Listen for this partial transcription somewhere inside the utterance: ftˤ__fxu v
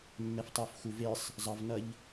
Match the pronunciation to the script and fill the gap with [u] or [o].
o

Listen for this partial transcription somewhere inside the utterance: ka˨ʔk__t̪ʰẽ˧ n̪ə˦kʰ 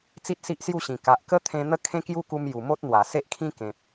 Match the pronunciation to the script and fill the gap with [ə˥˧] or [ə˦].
ə˦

